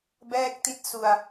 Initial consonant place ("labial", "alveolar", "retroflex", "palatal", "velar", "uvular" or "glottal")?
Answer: labial